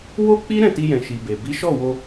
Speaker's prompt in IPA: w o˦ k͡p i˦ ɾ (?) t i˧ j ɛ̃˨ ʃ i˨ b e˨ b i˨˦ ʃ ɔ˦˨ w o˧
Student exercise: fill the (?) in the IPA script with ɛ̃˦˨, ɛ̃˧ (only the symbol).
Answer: ɛ̃˦˨